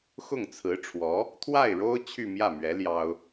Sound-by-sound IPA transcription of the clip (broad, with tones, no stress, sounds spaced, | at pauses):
x ʊ˥˩ ŋ t͡sʰ ɹ̩˧˥ ʈ͡ʂʰ w ɔ˧˥ | t̪ʰ w a˥˩ ɪ̯ ɻ o˥ ʊ̯ t͡ɕʰ y˥˧ m j ä˥˩ m ɥ ɛ˧˥ l j ɑ˥ ʊ̯